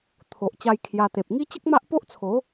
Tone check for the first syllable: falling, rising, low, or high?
low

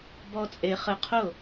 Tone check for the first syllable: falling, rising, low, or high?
high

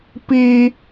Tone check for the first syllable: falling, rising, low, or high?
high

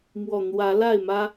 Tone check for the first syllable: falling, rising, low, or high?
low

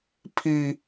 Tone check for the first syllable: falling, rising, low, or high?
high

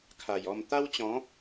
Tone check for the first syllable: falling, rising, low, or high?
low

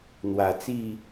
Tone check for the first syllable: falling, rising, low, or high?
low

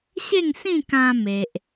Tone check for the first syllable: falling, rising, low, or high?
falling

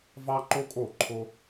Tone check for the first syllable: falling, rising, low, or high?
high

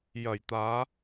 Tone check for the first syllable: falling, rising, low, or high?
low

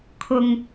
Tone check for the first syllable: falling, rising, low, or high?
low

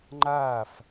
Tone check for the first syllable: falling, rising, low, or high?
falling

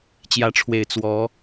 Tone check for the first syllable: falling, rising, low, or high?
rising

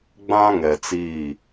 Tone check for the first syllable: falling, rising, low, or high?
high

